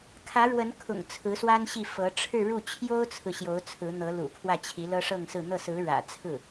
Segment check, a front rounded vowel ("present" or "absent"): absent